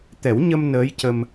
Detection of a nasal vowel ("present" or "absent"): absent